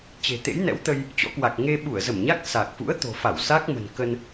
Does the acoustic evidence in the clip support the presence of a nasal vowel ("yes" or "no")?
no